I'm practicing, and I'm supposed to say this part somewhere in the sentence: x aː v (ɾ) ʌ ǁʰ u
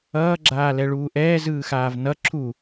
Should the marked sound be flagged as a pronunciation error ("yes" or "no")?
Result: yes